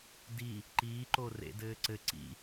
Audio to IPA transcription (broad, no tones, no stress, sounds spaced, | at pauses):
d i | ǃ iː ǃ o r ḛ d ɘː ǀ ɘ ǀ ḭ